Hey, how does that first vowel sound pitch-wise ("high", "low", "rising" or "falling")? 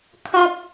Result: high